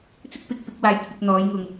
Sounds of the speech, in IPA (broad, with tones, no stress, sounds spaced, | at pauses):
t͡s ɪ˥ k̚ p ɪ˨˥ k̚ p ɪ˨˥ k̚ w aː˧ j kʷʰ ɪ˧ k̚ n̪ ɔː˨˥ j ŋ ʊ˨ ŋ